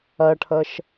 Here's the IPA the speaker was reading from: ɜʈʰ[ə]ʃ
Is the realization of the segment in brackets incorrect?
no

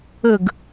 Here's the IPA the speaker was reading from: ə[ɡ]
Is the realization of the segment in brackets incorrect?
no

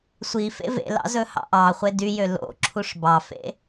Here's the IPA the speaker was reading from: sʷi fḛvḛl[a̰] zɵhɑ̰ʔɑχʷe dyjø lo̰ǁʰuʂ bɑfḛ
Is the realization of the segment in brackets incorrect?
yes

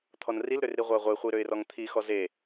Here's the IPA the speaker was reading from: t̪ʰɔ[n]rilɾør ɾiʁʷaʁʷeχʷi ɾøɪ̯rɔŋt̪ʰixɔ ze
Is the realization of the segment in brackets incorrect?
no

